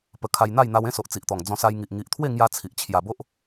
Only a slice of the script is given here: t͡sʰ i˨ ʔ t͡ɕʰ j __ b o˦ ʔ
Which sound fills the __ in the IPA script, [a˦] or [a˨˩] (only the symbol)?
a˨˩